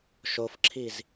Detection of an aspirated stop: present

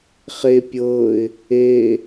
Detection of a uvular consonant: present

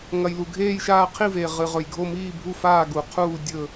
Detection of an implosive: absent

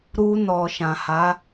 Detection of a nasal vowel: present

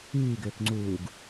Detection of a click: present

